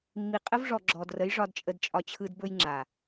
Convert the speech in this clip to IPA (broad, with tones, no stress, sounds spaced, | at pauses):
mː i˨ qʼ ə˦ v ʐ ɔ˨ ɡ͡ǁ ɔ˨ d r ə˨˦ j ʐ ɒ˦ d t͡ʃʼ ə˦ d t͡ʃʼ ɒ˦ t͡ɕʰ ɯ˦ d b ɵ˦ j ŋ͡ǁ a˨